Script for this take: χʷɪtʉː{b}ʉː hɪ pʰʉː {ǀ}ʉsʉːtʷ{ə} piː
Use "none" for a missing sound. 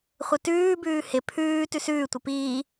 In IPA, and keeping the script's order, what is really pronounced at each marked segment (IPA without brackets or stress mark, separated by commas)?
b, t, ə